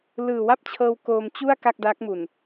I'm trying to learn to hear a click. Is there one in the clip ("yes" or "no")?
no